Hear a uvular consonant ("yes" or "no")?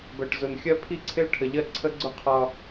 yes